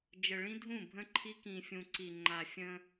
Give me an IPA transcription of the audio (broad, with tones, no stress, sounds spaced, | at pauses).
d͡ʒ ə˨ ɭ ĩ˦ dʱ ũ˦˨ bʱ ə̃˦ ǃʰ i˦ k ĩ˨ fʲ ũ˨ ǀ i˨ ŋ͡ǃ a˨ fʲ ə̃˦